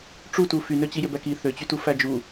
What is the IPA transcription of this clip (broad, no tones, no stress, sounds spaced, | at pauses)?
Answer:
ʈ͡ʂ u t u f y n ø t͡ɕ i j ø b æ k i θ ø t͡ɕ y t u f æ d͡ʒ u